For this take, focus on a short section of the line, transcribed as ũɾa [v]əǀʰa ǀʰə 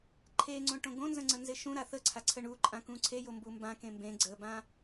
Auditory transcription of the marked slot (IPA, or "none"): θ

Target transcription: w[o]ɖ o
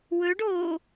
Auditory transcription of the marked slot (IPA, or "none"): ɵ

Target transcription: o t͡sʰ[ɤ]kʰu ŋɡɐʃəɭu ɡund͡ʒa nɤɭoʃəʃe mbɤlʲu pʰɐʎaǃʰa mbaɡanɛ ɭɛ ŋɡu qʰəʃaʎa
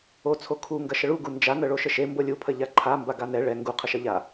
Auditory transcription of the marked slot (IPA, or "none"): o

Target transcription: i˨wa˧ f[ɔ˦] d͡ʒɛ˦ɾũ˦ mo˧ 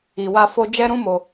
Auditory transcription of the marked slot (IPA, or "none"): o˦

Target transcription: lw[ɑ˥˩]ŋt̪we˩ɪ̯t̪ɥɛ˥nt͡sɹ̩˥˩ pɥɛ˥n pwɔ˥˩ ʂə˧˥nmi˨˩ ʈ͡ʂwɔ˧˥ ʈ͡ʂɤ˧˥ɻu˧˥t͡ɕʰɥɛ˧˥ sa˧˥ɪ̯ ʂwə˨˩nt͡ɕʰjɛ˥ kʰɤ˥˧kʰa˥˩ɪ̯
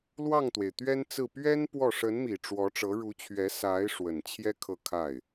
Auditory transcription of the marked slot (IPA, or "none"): ɑ˥˩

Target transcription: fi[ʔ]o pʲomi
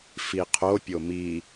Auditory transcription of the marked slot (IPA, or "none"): qʰ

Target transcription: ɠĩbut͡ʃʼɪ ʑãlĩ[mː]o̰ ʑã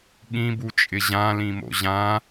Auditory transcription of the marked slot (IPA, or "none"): m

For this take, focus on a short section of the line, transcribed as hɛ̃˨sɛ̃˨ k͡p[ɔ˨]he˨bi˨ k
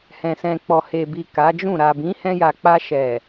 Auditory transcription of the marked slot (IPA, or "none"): ɔ˨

